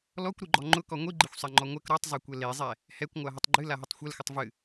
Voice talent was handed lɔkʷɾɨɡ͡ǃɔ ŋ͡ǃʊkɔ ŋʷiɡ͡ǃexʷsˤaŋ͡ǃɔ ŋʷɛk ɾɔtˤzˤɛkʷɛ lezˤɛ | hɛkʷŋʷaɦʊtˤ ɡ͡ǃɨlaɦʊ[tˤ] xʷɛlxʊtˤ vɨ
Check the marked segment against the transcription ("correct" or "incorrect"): correct